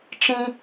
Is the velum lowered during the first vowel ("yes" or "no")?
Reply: yes